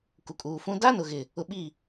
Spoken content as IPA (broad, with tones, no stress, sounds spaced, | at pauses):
k u˨ kʼ uː˨ f ũ˦ d a˦ n ʊ˨ ɣ ɪ˨ | ʊ˨ ɓ i˦˨